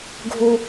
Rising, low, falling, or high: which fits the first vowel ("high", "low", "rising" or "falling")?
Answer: high